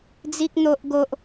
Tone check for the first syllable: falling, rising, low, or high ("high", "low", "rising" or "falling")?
high